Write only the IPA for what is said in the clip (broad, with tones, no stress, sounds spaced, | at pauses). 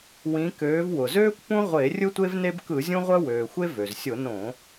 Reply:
w ĩ˩˧ k øː˩˧ v w ʊ˩ z øː˦ kʷ p ũ˦ ʁʷ e˧˩˧ rʲ ɯ˦ tʷ e˦ v n e˦ b k ɯ˧˩˧ zʲ ũ˦ ʁʷ œ˦ w øː˩ xʷ e˦ v ø˩ z sʲ ʊ˧˩˧ n õ˧˩˧